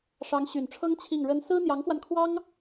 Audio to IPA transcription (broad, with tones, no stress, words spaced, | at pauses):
ʂɑ˧˥ŋɕy˨˩nʈ͡ʂʰɤ˥ŋ t͡ɕʰi˥˩ŋɻə˥n sɹ̩˥n̪jɑ˧˥ŋfwa˧nkʰwɑ˥ŋ